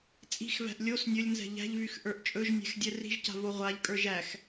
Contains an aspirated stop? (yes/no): no